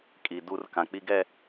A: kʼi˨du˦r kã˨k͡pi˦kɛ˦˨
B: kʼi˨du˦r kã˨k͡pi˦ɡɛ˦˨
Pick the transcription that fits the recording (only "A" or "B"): B